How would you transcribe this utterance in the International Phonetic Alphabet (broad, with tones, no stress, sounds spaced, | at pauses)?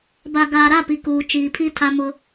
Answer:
b a˨ ɡ aː˨ ɾ a˦˨ p i˨ k uː˨ t͡ʃ iː˨ pʰ i˦ tʰ a˦ m ʊ˦